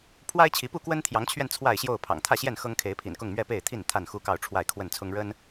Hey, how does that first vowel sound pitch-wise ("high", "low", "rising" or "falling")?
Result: high